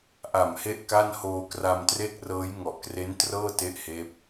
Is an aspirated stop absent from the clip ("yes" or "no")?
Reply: yes